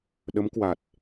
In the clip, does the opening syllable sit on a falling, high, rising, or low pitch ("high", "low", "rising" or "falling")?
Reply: rising